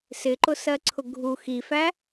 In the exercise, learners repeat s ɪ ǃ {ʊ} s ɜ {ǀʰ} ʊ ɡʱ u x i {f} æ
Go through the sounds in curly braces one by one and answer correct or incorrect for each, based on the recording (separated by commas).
correct, correct, correct